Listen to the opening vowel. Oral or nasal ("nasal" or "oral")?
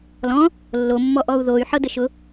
nasal